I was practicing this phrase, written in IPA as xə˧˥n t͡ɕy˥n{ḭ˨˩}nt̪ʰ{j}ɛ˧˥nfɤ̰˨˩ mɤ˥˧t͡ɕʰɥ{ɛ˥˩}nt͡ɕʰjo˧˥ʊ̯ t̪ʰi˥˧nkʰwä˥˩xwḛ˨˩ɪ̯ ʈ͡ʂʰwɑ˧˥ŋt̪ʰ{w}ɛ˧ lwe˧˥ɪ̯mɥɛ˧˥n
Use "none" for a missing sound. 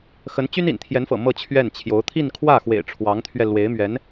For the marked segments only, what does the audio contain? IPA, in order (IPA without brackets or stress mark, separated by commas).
ḭ˨˩, j, ɛ˥˩, ɥ